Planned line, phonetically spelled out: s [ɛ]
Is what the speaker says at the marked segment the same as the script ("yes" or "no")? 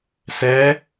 yes